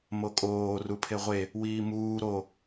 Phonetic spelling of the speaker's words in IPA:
m o kʼ oː r u pʰ e ʁʷ e | w iː m uː ɾ o

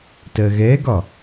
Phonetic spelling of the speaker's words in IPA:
t ɜ ɣ ɛ ɡ ɒ

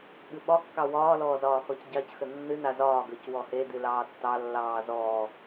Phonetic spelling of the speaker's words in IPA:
ɠ ɨ ɓ ɒ kː ɑ w ɒː l ɔː z ɒː x ɔ c ɟ ɑ c x ə nː ɨ n a z ɒː ɡ ə˞ c w ɔ h e d ɨ l ɑː tː ɑ lː ɑː z ɔː

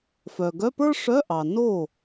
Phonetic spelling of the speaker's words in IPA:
f œ˨ ɡ œ˧˥˧ p ə˞˥ ʂ œ˧˥˧ ʔ ɑ˨ n o˥˩

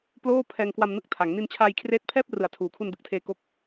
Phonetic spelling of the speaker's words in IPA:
p l oː˥˩ pʰ ɛː˧ ŋ k w a˧ m n ɯ˦˥ k̚ tʰ a˩˦ ŋ n i˧ n t͡ɕʰ aː˧ j kʰ r eː˦˥ t̚ pʰ ɛː˥˩ p̚ r ɯ˨˩ a̯ tʰ uː˩˦ kʰ u˧ n d ɯ˨˩ k̚ tʰ eː˧ k o˦˥ k̚

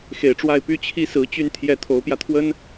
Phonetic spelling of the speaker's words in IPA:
x e˨˩ ɪ̯ ʈ͡ʂ w a˥˩ ɪ̯ p y˥ t͡ɕʰ i˥ s ɹ̩˧˥ t͡ɕ y˥˧ n t̪ʰ j ɛ˥˩ t̪ʰ o˧˥ ʊ̯ p j ä˧ t̪ʰ w ə˥ n

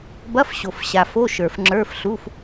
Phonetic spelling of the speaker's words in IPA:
b ɐ˧˥˧ f ɕ o˨˩ f ɕ a˨˩ f o˧˥˧ ʃ ə˞˨˩ f ŋ͡ǁ ə˞˧˥˧ f ɬ u˧˥˧ f

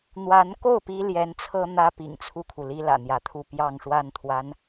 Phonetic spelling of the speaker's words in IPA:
n̪ w a˧˥ n k o˥˩ ʊ̯ p i˥ l j ɛ˧˥ n t͡sʰ ɤ˥ n̪ ä˥ p ḭ˨˩ ŋ t͡sʰ u˥˩ kʰ u˩ l i˥ l ä̰˨˩ n̪ j ä˧˥ t̪ʰ u˥˧ p j ɑ˥˧ ŋ ʂ w a˥˩ n t̪ʰ w a˧˥ n

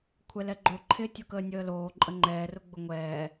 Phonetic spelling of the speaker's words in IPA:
kʷʰ ɛ l ɛ ɡ͡ǃ o ǃʰ ɪ tʲ ʊ k əː nʲ əː l oː ǃʼ ə ŋ͡ǃ ɛː r ʊ ɡ͡b ʊ ŋʷ ɛː

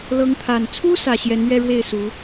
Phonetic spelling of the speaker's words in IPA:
l ɤ˧˥ ŋ t̪ʰ a˨˩ n t͡sʰ u˥ s ä˨˩ ɕ j ɛ˧˥ n ɥ ɛ˥˧ ɻ w e˥˩ ɪ̯ s u˧˥

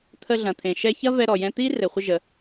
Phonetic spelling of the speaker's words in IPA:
t̪ʰ ə˧ ɮ ɐ̃˩ t̪ʰ ẽ˩ ʃ ɛ˧ ç ɐ˥ v ɛ˧ ɾ ɔ˩ j ɛ̃˧ t̪ i˥ r ɘ˩ χʷ ə˧ ʒ ə˩

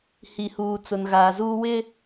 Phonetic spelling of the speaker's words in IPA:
h i˨ h uː˨ t͡s ʊ˨ n ɣ aː˨ z uː˦ w ɪ˦

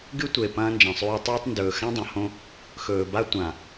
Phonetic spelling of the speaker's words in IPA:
ɡ ɨ˦ tʷ e˨ p ɐ̃ː˦ n d͡ʒ ɐ̃˨ sˤ ʉː˦ tˤ ɵː˦ tˤ n d ɵː˨ x ã˦ dˤ ɐ̃˨ h õ˦ | x ɵː˨ b a˦ tʷ ã˨

